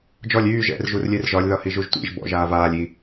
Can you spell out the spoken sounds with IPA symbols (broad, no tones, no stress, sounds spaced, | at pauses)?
d͡ʒ ɔ lʲ yː ʒ ɛ̰ r ʒ u r lʲ e r ʒ ɒ lʲ ð ɒ h i ʒ u ʒ tʷ ḭ ʒ b ɔ̰ ʒ aː v aː lʲ i